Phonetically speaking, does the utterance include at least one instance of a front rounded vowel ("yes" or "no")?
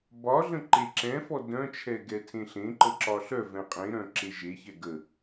yes